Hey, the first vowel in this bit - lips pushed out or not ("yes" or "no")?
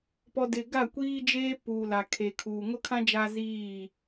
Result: yes